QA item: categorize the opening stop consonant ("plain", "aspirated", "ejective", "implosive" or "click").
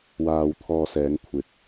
aspirated